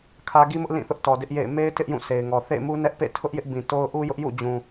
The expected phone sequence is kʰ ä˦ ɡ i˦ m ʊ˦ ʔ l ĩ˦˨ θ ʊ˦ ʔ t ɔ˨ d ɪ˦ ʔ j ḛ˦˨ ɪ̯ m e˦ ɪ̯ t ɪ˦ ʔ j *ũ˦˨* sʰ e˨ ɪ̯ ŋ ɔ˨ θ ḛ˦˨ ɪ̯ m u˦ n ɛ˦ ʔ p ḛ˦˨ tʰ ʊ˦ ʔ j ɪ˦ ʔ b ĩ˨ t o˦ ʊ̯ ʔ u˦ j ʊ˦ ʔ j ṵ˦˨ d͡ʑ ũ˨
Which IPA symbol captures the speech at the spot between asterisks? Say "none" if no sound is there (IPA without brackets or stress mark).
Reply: ũ˦˨